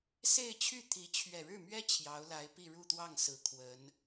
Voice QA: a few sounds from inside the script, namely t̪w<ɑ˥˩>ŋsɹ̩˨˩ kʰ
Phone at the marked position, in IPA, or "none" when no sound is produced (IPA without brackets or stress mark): ɑ˥˩